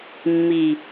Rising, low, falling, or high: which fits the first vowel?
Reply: low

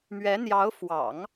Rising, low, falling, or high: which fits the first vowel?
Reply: rising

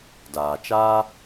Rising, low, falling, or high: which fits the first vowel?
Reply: low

